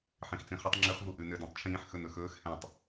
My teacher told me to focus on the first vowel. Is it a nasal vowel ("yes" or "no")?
yes